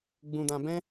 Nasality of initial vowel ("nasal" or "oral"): nasal